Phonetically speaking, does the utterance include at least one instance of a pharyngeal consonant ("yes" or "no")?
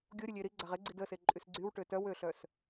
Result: no